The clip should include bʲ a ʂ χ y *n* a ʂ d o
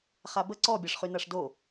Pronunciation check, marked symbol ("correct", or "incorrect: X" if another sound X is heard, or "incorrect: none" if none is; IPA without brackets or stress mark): correct